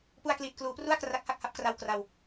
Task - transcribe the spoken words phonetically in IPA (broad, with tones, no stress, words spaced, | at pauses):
pu˧a̯kliː˨˩t̚kluː˩˦pru˥˩a̯ kra˦˥k̚ha˥˩k̚ha˦˥p̚kra˧w kra˧w